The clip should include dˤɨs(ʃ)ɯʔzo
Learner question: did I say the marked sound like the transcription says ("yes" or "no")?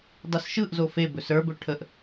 yes